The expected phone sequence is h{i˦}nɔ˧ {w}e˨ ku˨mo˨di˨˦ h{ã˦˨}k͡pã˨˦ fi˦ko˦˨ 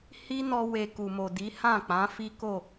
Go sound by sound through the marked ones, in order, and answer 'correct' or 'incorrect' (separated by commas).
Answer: correct, correct, correct